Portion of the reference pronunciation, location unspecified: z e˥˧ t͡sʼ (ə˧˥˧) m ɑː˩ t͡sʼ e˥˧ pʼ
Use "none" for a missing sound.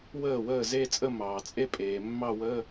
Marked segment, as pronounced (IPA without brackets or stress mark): ə˥˧